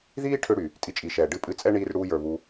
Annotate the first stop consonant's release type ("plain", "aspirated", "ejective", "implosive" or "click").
aspirated